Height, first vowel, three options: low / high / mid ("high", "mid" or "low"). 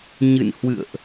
high